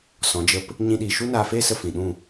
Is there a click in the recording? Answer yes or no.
no